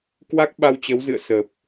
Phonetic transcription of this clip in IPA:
k w a˦˥ k̚ ɓ a˧ w t͡ɕ ə˨˦ w z ɨ̰˧˨ ə̯ s ə˨˩ p̚

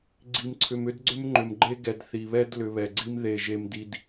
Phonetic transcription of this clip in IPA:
ɡ͡ǀ i˨ m ǀʰ ʏ˨ m ʏ˦ d ɡ͡ǀ ʏ˦ m ŋ͡ǃ ʏ˨ m ɡ͡ǃ e˦ ɡ ɛ˨ d θ i˨ β ɛ˦ d l ʏ˨ β ɛ˨ ɡ͡ǀ i˦ m ð e˦˨ ʒ e˦ m d i˦ d

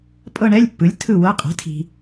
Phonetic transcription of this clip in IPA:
pʼ ɤ˥˧ ɳ ɛ˧˥˧ lʲ pː ɯ˩˥ lʲ tʰ ɯ˥˩ w ɤ˧˥˧ qʼ ɛ̤˩˥ tʰ i̤˩

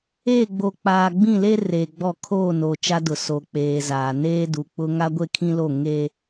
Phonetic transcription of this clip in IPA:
e˦˨ ɡ͡b o˨ k͡p aː˨ ɡ͡b ĩ˦˨ l e˦ r eː˨ ɡ͡b ɔ˦˨ kʰ oː˦˨ n o˨ t͡ʃ a˦ d ʊ˨ s o˨ k͡p eː˨ z aː˨ n eː˦ d u˨ k͡p ʊ˦ ŋ a˦ ɡʷ e˦ kʰ ĩ˦ l o˦˨ ŋ e˦

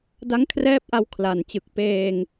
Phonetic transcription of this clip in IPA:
d a˦˥ ŋ kʰ r ɛː˦˥ p̚ ʔ a˧ w kʰ l a˨˩ n t͡ɕ ɯ˨˩ k̚ p eː˧ ŋ

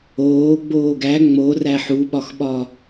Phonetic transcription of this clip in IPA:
oː ɡ͡b oː ɡ æ ŋ͡m o r æ ħ u ɓ ɒ x ɓ ɒ

